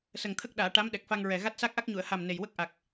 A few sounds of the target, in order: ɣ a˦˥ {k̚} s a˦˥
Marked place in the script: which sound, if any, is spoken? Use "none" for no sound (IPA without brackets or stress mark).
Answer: t̚